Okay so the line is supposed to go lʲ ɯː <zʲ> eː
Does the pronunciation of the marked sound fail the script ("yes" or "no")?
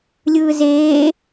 yes